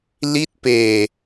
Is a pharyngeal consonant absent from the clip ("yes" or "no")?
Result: yes